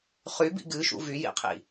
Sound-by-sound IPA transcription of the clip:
χybḭ ɡɨʃṵ vyjḭqʰḭ

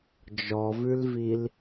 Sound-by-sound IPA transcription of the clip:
d͡ʒɔvʉlvil

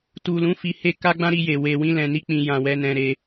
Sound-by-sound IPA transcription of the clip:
tu˨lũ˨˦ fi˧he˦ka˦ɡ͡bã˦ ɾi˧je˨ we˨wĩ˧ lɛ̃˨ni˧ k͡pĩ˨ jã˨ wɛ˧nɛ̃˧ɾe˧

